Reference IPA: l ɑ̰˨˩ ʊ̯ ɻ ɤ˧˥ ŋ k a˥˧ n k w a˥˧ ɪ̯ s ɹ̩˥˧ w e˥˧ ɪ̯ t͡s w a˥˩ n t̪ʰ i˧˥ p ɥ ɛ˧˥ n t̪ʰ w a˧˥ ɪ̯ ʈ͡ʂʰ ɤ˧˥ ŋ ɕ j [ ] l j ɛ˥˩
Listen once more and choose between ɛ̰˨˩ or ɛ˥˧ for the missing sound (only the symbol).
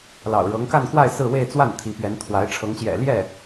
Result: ɛ̰˨˩